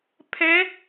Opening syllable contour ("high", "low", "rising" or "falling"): rising